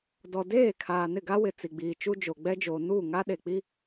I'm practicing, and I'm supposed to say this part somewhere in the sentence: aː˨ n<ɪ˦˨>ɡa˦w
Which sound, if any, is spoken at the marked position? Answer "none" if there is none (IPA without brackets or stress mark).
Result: ɪ˦˨